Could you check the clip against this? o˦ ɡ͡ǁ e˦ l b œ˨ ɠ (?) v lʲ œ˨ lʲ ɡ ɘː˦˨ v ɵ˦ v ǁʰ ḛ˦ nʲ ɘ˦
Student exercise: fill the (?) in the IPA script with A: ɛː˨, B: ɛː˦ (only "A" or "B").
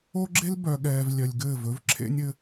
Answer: A